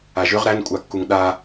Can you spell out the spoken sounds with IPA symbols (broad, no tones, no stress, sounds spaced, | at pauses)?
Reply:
a ʒ ʏ ʁ ɾ æ n kʷʼ a kː u ŋ ɗ a